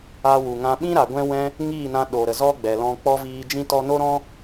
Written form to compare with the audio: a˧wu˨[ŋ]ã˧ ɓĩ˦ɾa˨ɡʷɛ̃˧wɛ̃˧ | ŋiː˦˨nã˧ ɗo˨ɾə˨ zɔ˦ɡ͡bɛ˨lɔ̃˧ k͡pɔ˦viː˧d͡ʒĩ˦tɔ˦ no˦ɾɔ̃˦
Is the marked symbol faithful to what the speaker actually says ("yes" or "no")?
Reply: yes